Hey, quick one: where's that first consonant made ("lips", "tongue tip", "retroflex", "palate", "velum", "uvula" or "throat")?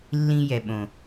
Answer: tongue tip